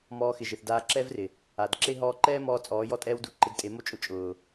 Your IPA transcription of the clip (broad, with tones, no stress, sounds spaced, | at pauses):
m ɔː˧ x ɪ˨ ʒ ɪ˨ θ d aː˧ ǁ ɛ˦ v r ɪ˨ | a˨ d ǁ e˦ ɦ ɔː˧ ǃ ɛː˦ m ɔː˧ t͡sʼ ɔː˨˦ j ɔ˦ tʼ ɛː˦ w d u˧ ǃ ɪ˧ d tʼ e˨˦ m o˦ t͡ʃʼ ʊ˧ t͡ʃʼ ʊː˨